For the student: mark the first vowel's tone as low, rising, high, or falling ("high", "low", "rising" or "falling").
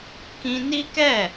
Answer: high